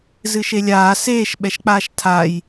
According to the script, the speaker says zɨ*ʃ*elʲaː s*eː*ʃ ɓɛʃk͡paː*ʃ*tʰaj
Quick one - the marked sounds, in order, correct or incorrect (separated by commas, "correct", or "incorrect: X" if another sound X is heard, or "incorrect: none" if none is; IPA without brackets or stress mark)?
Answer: correct, correct, correct